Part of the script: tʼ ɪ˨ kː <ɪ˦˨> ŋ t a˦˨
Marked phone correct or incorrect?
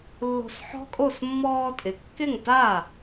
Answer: correct